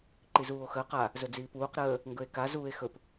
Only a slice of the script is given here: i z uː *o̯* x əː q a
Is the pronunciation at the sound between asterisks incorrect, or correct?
correct